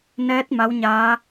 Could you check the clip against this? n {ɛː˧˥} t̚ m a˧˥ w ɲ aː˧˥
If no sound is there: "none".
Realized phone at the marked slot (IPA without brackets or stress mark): ɛː˧˥